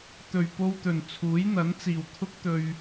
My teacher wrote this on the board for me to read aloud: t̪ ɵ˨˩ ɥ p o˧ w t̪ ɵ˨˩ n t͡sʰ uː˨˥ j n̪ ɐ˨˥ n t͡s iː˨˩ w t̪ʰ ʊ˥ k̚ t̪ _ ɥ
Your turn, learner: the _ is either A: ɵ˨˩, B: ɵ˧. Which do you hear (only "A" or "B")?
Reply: B